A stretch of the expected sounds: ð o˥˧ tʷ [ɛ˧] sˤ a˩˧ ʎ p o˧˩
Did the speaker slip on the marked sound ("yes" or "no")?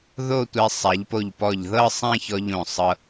no